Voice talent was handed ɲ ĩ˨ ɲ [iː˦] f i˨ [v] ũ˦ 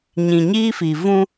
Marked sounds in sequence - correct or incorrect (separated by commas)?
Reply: correct, correct